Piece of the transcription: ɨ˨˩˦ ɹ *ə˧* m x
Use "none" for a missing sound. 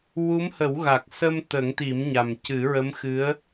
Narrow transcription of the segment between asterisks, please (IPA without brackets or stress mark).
ə˧˥